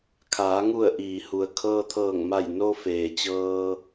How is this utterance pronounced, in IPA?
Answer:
kʰ aː˩˧ ŋ u˧˩ ə̯ ʔ iː˩ h u˩ ə̯ kʰ ɤː˧ t̪ʰ ɤː˧˩ ŋ m a˧˩ j n o˧ f eː˩ t͡ɕ ɤː˧

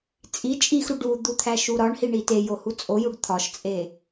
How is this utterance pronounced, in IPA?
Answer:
t͡sʼ i t͡ʃʼ i x ɾ u ɖ u d̪ u t̪ʰ æ ʃ u ɾ ɒ ɳ h i ɳ i t e j o h u t͡sʼ o j u ɖ t̪ʰ ɒ ʃ t͡sʼ e

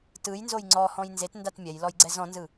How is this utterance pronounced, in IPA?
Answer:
t ɯ j n z o j ŋ͡ǀ ɔ h ɔ̃ j n z e t n d a t mʲ ɛ j l ɔ j ɡ͡ǀ ɛ z ɔ̃ n z ɯ

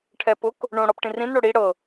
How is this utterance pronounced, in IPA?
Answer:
ʈʰ ɛ p ʊ k | ɳ õ ɽ ɔ p ʈ ĩ r ĩ n ɽ o ɽ i ɽ ɤ

